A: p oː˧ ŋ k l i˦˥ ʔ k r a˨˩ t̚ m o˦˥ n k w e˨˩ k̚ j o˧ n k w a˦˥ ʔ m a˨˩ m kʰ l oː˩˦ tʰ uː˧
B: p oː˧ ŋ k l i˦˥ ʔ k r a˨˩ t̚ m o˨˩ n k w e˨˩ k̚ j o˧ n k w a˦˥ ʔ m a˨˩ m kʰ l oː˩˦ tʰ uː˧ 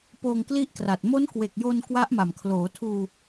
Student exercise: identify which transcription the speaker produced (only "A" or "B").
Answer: A